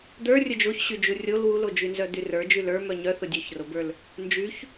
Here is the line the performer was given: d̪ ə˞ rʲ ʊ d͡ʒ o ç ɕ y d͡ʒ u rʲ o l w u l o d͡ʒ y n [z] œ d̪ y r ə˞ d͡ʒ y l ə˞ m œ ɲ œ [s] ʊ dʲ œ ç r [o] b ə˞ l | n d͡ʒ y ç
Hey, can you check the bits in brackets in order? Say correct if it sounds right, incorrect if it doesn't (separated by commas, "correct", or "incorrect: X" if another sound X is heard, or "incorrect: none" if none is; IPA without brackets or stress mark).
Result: correct, incorrect: θ, correct